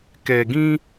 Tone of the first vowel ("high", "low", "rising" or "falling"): low